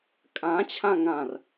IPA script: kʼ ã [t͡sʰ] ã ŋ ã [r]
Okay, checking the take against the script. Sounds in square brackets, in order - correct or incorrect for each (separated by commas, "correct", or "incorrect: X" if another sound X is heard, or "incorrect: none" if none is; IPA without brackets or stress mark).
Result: incorrect: t͡ɕʰ, correct